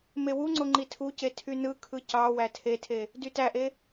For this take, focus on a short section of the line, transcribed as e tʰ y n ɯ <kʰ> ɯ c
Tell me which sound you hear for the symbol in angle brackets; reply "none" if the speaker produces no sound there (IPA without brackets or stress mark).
kʰ